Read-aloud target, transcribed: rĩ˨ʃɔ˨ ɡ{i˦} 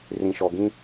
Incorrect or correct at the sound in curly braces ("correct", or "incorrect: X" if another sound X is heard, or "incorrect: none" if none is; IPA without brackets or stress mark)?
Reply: incorrect: ĩ˦